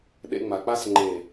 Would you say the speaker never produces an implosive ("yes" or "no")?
no